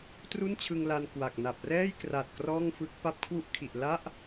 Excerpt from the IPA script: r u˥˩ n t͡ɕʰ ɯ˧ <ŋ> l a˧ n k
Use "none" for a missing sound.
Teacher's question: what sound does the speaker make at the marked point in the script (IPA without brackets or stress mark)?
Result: ŋ